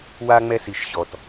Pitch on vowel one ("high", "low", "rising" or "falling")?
low